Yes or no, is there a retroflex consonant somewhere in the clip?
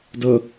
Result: no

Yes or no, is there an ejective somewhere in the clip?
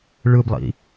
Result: no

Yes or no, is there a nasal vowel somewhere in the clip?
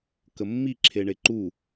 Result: no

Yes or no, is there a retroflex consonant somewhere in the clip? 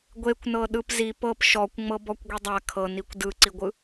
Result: no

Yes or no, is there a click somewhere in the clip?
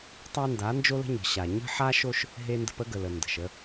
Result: no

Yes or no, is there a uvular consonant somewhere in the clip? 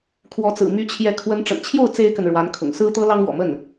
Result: no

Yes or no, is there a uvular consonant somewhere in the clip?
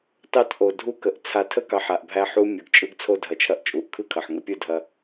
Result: no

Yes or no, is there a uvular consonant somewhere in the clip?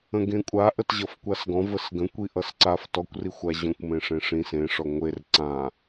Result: no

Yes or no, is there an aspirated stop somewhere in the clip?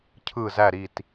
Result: yes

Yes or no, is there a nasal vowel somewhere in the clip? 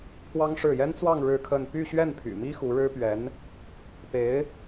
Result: no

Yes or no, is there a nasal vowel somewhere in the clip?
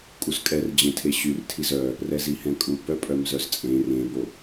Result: yes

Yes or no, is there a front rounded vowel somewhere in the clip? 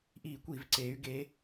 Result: yes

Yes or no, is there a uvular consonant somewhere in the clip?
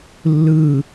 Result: no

